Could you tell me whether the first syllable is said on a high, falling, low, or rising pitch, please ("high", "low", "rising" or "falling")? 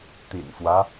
low